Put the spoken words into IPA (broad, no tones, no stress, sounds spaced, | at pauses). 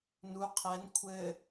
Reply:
n u qʰ ɛ n kʷʰ ɘ